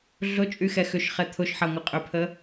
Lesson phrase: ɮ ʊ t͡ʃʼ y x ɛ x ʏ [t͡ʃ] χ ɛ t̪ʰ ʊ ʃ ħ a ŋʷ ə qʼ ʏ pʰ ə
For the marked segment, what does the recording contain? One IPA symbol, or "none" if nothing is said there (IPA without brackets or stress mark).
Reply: ʃ